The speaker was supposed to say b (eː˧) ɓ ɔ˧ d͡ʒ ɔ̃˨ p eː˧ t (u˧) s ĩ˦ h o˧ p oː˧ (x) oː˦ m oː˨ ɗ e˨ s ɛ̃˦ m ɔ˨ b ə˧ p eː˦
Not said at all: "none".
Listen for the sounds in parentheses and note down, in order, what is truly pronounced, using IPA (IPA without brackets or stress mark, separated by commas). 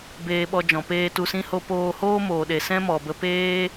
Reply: eː˧, u˧, h